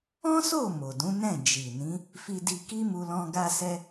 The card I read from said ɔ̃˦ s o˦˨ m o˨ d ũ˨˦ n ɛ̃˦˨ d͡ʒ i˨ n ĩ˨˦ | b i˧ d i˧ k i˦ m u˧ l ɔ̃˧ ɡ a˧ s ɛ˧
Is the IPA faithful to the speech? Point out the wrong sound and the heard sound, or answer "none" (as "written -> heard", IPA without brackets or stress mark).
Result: b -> f